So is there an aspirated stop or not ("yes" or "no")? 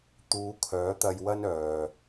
yes